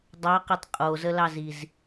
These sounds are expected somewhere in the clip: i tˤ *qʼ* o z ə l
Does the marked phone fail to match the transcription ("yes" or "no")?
no